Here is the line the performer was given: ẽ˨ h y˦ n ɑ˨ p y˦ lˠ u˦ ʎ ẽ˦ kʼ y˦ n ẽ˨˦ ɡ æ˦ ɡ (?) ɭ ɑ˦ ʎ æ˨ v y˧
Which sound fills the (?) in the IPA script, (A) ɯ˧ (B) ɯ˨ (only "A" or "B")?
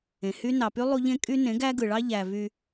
B